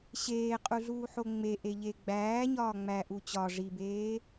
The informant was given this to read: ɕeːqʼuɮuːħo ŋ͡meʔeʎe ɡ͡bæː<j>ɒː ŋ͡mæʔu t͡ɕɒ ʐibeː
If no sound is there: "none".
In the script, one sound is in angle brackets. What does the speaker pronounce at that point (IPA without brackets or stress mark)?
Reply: ɲ